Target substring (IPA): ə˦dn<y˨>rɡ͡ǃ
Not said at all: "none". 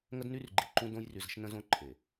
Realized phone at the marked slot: y˦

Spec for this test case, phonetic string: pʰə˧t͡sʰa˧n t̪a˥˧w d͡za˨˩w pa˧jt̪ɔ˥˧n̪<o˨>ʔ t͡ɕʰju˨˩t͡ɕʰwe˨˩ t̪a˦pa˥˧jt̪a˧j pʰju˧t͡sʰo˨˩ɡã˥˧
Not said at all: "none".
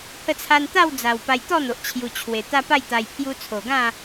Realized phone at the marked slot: o˨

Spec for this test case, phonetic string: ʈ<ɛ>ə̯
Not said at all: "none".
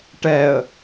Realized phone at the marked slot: ɛ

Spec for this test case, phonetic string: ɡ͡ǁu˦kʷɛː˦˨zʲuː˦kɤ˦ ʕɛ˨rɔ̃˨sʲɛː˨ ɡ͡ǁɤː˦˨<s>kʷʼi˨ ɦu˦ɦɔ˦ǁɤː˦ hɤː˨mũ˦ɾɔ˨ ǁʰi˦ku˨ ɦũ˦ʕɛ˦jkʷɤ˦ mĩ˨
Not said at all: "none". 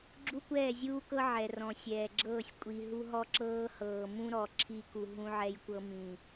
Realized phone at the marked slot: sʲ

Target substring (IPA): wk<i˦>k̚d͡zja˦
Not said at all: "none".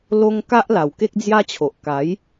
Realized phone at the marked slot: e˦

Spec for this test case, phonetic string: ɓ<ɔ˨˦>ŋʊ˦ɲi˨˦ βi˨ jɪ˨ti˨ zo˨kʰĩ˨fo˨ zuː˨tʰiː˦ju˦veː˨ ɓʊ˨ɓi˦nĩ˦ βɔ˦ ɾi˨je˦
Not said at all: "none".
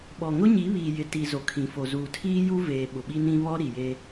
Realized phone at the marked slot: ɔ˨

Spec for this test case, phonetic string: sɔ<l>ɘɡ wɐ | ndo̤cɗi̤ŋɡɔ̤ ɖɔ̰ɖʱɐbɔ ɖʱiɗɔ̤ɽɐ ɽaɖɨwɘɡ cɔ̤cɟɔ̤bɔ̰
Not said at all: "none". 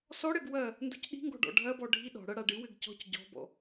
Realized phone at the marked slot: ɽ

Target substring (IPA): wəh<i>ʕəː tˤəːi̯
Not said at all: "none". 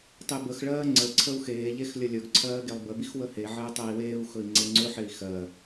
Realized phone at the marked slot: e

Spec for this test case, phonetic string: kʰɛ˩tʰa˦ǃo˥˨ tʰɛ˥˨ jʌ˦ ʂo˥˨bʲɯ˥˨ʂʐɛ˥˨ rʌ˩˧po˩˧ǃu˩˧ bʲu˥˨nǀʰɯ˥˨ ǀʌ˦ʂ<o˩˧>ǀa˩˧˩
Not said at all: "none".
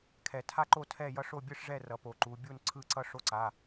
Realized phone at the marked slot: o˦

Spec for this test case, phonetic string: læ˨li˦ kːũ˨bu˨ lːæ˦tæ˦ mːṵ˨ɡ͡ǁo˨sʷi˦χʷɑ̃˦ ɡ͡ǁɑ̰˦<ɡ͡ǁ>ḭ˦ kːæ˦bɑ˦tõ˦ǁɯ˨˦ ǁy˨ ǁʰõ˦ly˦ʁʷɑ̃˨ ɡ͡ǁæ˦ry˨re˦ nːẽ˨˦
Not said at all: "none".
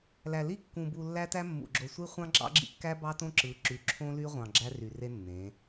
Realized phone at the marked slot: ɡ͡ǁ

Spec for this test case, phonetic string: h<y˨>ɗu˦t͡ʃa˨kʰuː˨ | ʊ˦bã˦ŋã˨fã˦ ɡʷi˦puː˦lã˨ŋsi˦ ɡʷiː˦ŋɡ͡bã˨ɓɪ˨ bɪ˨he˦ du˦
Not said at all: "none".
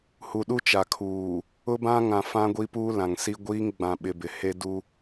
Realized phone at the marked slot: u˨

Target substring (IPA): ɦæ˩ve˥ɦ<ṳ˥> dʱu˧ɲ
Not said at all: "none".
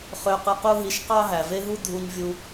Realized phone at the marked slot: u˥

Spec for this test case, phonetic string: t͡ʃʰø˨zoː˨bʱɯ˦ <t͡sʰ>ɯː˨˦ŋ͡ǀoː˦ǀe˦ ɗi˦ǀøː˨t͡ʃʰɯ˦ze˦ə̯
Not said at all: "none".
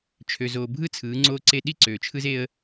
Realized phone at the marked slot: t͡sʰ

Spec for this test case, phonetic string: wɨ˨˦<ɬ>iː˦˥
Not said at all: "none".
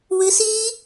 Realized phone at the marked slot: s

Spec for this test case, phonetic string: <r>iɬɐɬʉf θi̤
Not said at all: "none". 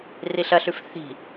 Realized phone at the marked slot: r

